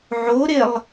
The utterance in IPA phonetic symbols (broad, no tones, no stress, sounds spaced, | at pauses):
ʕ o ɾ e lˠ